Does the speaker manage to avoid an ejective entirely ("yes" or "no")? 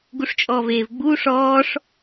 no